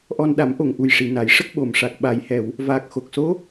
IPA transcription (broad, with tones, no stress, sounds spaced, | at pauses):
ʔ ɔ˧ n ɗ a˨˩˦ m ʔ o˨˩ ŋ ʔ u˨˩ j ʂ i˨˩˨ n a˨˩˦ j ʂ ə˦˥ k̚ ɓ o˨˩ m ʂ a˨˩ k̚ ɓ a˨˩˨ j h ɛ˨˩˨ w | v aː˨˩ k̚ x o˨˩ k̚ s o˧˥